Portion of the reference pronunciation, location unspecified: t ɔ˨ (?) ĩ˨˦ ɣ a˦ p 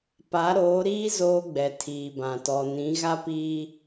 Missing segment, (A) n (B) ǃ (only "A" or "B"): A